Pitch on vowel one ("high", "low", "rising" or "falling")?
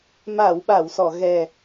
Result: low